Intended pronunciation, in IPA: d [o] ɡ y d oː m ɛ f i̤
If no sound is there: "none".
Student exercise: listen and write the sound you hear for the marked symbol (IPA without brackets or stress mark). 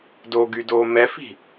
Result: o